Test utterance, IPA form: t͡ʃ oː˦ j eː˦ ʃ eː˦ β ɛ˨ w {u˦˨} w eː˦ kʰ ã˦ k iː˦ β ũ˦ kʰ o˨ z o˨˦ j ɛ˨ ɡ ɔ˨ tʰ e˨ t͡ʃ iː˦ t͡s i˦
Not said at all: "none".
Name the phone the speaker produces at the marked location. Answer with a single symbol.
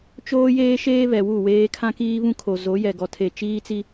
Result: u˦˨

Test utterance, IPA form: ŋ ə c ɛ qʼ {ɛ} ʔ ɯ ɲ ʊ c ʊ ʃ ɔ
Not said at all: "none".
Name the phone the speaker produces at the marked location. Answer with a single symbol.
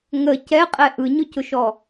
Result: ɛ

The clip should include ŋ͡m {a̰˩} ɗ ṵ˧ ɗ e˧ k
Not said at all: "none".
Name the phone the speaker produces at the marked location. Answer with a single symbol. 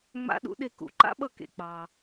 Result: a̰˧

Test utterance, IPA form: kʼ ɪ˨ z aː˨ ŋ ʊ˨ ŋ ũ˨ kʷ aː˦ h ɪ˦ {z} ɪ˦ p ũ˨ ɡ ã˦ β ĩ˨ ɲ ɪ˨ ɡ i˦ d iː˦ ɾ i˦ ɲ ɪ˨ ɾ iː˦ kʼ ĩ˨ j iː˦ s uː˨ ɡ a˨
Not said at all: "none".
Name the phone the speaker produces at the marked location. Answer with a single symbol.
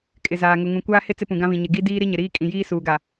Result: t͡s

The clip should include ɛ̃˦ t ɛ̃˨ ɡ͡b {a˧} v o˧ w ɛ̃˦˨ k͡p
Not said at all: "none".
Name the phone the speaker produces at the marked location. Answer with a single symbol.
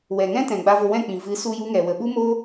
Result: a˧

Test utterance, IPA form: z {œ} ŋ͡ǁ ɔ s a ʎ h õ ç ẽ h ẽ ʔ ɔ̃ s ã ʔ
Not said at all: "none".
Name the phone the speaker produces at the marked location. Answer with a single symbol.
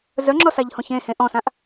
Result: œ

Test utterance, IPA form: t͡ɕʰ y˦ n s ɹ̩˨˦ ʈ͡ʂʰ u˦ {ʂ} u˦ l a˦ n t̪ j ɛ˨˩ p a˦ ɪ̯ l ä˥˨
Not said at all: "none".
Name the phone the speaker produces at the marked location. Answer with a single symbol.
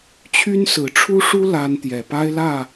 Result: ʂ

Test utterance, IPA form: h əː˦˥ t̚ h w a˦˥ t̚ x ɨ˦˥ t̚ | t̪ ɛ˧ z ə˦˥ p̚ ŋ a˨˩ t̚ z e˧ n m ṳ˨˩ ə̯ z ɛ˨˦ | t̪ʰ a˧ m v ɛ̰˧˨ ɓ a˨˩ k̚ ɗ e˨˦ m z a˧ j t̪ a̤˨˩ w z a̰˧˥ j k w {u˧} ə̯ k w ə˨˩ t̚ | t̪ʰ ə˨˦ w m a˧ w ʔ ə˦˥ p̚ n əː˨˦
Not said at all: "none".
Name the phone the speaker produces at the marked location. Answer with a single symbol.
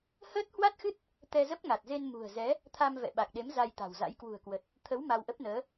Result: ṳ˨˩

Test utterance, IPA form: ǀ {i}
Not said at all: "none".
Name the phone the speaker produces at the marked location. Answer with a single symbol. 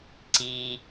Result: i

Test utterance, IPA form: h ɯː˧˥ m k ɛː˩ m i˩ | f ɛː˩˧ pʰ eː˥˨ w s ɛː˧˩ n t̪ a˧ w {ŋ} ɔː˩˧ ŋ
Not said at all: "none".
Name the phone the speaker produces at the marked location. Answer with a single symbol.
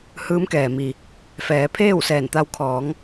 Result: kʰ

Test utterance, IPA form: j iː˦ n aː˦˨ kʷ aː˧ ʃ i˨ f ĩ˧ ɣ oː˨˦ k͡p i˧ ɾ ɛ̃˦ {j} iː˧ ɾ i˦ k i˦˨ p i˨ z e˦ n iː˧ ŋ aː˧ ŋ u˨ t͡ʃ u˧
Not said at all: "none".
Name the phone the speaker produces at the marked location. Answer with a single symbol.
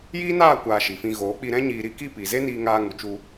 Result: ɲ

